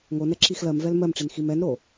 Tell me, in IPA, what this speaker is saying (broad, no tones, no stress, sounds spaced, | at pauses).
ŋ o n ɛ ǁ i x l ɜ m v ɛ l m ɜ m ʈ͡ʂ i n x i m ɛ n ɾ o